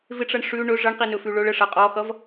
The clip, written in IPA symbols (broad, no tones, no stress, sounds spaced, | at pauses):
v ɪ ʈ͡ʂ ʌ ɳ ʂ ʉ ɳ ɵ ʐ ʌ ɳ q i n ɵ f ʉ ɭ ɵ ɭ ə ʂ ʌ qʼ ɔ x ʌ v